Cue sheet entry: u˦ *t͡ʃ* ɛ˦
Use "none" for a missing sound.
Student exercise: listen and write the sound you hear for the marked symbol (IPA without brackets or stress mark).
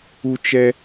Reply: t͡ʃ